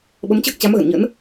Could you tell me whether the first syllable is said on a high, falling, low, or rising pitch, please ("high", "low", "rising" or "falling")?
rising